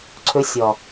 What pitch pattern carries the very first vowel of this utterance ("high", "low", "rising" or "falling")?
rising